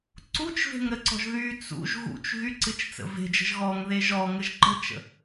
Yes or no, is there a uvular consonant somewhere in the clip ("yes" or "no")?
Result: no